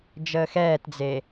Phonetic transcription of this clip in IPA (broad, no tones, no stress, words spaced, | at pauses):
d͡ʒəːxɛːtd͡ze